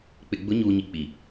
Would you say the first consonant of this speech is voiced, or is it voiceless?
voiceless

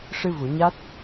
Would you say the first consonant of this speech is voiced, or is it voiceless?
voiceless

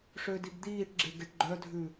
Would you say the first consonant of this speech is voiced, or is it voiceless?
voiceless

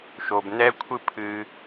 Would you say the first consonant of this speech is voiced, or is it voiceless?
voiceless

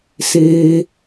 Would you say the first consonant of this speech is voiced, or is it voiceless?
voiceless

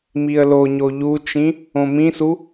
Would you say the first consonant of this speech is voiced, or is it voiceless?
voiced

